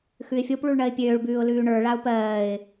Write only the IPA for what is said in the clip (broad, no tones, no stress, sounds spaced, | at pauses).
x ʉ ɪ̯ fʲ o p ɭ u ɭ ɳ ɜ ɪ̯ pʲ øː ɭ b ʉː ʊ̯ l ʉː ɳ ə˞ ɭ a ʊ̯ p ɜː ɪ̯